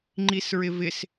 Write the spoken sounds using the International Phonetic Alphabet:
ŋ͡ǃ i s ɹ ɪ v ɪ s

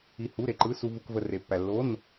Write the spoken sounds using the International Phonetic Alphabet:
i˧ h u˧˥˧ ɾ e˧ ǃ ɯ˧˥˧ s u˧ v u˧ k v ə˧ r e˧ pː æ˧ lː o˧˥˧ n

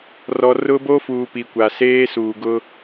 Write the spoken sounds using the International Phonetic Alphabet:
r ɔ˨ r ʊ˦ b o˦ f uː˨ p i˨ kʷ a˨ s eː˦ s uː˨ ɡ ʊ˦

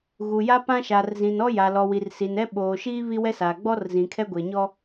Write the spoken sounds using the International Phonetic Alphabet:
ɣ u˨ j a˦ p ã˦ ʃ aː˨ r z ĩ˨ n ɔ˦ j a˨ l ɔ˨ w i˨ r s i˨ n ɛ˦ ɓ oː˨ ʃ iː˦ β i˦ w ɛ˦ s aː˨ ɡ͡b ɔ˦ r z ĩ˨ kʰ ɛ˦ ɡʷ e˨ ɲ ɔ˦

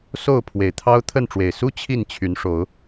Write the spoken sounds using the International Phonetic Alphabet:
s o˥˨ ʊ̯ pʰ w e˨˩ ɪ̯ t̪ʰ ɑ˦ ʊ̯ t̪ʰ ə˥˨ n ʈ͡ʂ w e˨˩ ɪ̯ s u˦ t͡ɕʰ i˥˨ n t͡ɕʰ y˨˦ n ʂ o˨˦ ʊ̯

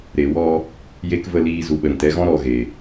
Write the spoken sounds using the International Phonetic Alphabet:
ɾ e˨ w ɔ˧ | j e˧ k v ə˦˨ l iː˧ z u˨ ɓ ə˨ ɾ ĩ˨ t ɛ˧ ɣ ɔ̃˦ ɾ ɔ˧ ɣ e˨

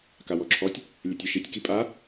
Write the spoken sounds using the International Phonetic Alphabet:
k a w ɔ ǁʰ ɔ tʲ | lʲ ɛ tʲ œ ʃ i tʲ k i pʼ a

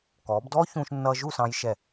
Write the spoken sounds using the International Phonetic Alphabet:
k ɔː˩˧ b d ɔː˥ ç ũː˧ ʃ nː ʌː˧ ʒ u˥˧ s ɑ̃˧ j ʃ ɛ˧˩

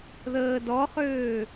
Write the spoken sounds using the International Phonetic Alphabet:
ð əː d ɔ χ øː

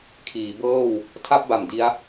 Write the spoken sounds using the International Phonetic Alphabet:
kʰ iː˩˦ b ɤː˥˩ w | tʰ a˥˩ p̚ b a˨˩ m d i˦˥ a̯

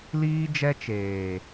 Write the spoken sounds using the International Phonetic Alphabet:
l iː˦ d͡ʒ ɛ˦ t͡ʃ eː˨

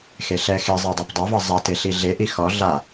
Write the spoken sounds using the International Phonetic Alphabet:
x e ɬ ɛ x e zˤ i dˤ æ p dˤ a v ʌ zˤ a t e ɬ i ɮ e ʔ i x ɔ ɮ a

